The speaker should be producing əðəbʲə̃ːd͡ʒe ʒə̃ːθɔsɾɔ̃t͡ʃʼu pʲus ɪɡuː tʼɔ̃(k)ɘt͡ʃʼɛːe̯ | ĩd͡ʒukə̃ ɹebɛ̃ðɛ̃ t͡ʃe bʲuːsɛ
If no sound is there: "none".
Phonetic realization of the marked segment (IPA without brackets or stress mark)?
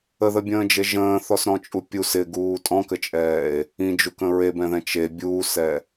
k